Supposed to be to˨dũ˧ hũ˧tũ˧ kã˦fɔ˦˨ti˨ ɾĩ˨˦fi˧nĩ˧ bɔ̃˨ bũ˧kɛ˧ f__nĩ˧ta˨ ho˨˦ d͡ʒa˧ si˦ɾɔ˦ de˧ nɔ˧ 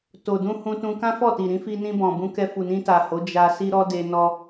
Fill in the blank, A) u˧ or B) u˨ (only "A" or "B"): B